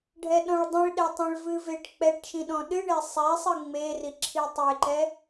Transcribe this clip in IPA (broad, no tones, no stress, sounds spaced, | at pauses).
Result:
ɖʱ ɛ ɗ ɔ̃ ɭ dˤ ĩ ɭ ɗ ɛ tˤ ẽ ɭ v ɨ v e ʈ k͡p ɛ ʈ ʃ ĩ ɗ ɔ̃ ɗ ɨ ɳ e sˤ ɛ sˤ ɨ ŋ͡m e r i ǁʰ i tˤ e ǃ ɛ